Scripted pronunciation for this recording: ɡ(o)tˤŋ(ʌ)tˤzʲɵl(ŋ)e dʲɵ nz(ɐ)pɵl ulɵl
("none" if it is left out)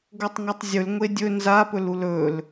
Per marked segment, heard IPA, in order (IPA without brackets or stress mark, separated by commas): o, ɑ, ŋʷ, a